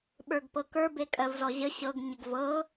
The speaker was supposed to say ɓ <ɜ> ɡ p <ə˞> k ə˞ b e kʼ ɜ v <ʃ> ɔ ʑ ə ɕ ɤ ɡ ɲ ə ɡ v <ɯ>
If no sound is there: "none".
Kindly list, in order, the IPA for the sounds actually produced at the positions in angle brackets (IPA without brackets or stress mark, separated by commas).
ə˞, ɤ, z, ɤ